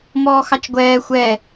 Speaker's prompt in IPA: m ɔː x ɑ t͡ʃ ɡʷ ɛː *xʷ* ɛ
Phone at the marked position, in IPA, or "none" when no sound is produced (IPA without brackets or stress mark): xʷ